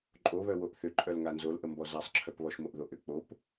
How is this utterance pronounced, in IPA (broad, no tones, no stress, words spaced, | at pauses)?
ǃʼoβœwoʔ θʏǃʼœl ŋanzolʔəmbɔ zasˤǁʰœp βɔʃmoʔðoʔʏ k͡pop